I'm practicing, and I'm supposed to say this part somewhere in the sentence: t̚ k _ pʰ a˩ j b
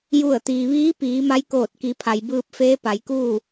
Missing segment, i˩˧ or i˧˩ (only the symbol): i˩˧